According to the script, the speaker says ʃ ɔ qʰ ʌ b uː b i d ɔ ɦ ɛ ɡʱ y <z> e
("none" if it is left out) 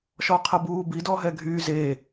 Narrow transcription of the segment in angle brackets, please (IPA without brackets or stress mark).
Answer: z